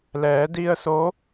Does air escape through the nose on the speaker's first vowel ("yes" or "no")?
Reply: no